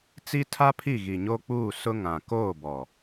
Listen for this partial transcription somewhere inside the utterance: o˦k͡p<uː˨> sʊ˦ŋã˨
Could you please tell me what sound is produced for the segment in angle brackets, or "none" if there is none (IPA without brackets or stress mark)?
uː˦˨